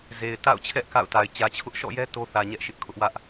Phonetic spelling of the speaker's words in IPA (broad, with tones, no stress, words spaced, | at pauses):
ze˨ɪ̯ ta̰˦˨ʊ̯t͡ɕʰɛ˦ʔ ka̰˦˨ʊ̯ta˨ɪ̯ t͡ɕä˨t͡ɕʰʊ˦ʔ ʃɔ̰˦˨jɛ˦ to˦θä˨ ɲɛ˦ʔʃɪ˦ʔkʰʊ˦ʔ wä˦ʔ